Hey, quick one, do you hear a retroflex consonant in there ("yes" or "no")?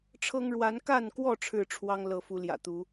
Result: yes